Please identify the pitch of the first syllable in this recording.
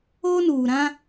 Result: high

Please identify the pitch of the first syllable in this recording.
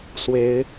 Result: rising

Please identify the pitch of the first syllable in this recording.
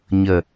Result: low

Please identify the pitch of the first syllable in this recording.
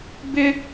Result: high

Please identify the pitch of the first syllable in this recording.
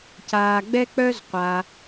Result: low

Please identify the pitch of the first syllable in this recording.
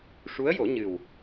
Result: rising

